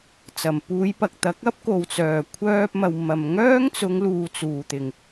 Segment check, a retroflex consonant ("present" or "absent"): absent